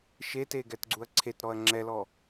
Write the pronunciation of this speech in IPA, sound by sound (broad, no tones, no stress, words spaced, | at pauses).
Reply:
ʃete ɡɛtɡ͡ǀuɐ̯ǀʰetɾɔɐ̯ ŋ͡ǁɛlɔ